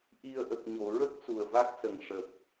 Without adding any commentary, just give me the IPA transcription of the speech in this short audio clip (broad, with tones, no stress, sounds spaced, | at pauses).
ʔ i˨˩ ə̯ ʔ ə˨˩ k̚ ɲ o˨˩˨ ɹ ə˦˥ k̚ s u˨˩ ə̯ v a˦˥ k̚ s ə˨˩ ŋ ʂ ə˨˩ k̚